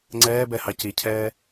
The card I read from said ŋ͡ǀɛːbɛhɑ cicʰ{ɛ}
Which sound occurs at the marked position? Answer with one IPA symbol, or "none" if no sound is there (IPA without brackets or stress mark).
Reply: ɛː